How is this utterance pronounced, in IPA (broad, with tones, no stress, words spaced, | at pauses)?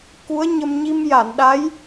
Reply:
ku˧˥ə̯ɲə˧m ɲi˧mja˨˩˨nɗa˧˥j